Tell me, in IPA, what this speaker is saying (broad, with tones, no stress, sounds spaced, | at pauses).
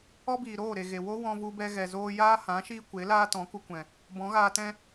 ɔ˦ b iː˨ ɾ oː˦˨ ɾ e˨ ɣ e˨ w o˦ w ɔ̃˧ v u˧ b ɛ˧ ɣ ɛ˨ z oː˦ j aː˦ h ã˨˦ ʃ iː˦ kʷ e˨˦ l aː˦ t ɔ̃˨˦ k u˧ kʷ ɛ̃˨ | b ɔ̃˨˦ ɣ aː˧ t ɛ̃˦